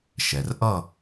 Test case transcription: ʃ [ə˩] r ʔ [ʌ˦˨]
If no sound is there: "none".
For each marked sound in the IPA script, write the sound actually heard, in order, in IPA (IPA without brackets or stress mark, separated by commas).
ɛ˩, ʌ˦˨